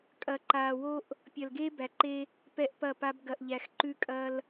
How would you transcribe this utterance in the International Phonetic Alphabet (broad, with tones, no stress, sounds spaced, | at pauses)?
kʼ ɐ˨ ǃ aː˨ w o˦ ʔ | pʲ ɐ˨ l ɡ eː˦ b æ˨ ǃ e˦ | p ɛ˦ ʔ p ɐ˦˨ p a˦ b ɡ ɐ˨ ʔ ʎ æ˨ x ǃ ʉ˦ kʼ ɐ˦ l